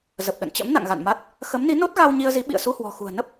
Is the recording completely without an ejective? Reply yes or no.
yes